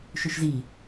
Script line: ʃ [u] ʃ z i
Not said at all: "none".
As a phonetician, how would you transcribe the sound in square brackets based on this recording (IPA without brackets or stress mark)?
ʏ